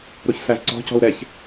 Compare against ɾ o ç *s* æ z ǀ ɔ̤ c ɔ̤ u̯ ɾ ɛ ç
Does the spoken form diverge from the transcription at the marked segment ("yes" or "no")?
no